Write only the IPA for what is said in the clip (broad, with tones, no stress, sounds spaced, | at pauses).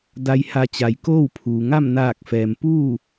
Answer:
d a˧ j h a˧ t͡ɕ a˩˧ j k oː˥˨ w pʰ uː˩ ŋ a˥˨ m n aː˧˩ k̚ f ɛː˩ m p uː˥˨